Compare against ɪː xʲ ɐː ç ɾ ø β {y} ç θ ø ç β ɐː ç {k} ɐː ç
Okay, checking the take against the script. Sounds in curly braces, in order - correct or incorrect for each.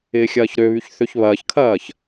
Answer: correct, incorrect

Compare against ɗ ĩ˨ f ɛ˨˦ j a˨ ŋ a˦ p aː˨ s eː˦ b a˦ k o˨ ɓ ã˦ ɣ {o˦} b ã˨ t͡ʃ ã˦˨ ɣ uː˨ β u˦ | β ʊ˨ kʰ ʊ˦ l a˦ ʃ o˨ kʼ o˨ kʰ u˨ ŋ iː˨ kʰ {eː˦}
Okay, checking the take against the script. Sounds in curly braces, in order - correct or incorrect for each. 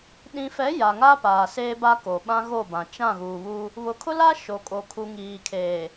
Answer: incorrect, incorrect

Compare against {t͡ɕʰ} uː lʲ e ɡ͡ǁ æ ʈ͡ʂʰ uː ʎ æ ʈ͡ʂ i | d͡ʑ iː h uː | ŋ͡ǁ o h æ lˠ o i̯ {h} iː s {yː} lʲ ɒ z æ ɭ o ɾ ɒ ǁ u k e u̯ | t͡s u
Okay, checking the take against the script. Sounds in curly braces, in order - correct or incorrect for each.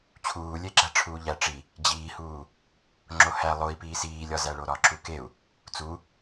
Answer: correct, incorrect, incorrect

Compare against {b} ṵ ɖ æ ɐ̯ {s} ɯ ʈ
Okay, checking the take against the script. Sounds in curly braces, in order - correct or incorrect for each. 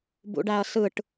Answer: correct, correct

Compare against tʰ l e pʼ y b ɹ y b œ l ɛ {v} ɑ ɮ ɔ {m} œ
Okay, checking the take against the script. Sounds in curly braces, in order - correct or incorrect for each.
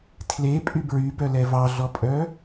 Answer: correct, incorrect

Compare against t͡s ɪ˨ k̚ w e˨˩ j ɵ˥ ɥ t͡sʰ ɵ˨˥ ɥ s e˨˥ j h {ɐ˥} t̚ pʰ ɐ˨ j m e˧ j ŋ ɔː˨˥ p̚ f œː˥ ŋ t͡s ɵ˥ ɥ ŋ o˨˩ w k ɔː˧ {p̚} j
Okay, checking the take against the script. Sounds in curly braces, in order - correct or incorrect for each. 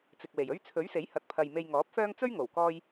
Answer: incorrect, incorrect

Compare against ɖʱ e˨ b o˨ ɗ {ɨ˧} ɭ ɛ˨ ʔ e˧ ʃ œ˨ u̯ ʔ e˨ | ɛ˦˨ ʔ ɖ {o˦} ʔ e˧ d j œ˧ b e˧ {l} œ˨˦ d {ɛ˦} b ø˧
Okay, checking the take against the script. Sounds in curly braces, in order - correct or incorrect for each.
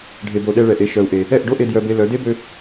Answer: incorrect, correct, correct, incorrect

